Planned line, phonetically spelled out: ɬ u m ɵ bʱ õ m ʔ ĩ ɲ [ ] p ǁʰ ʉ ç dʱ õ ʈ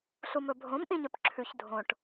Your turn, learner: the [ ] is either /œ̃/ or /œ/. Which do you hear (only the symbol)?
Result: œ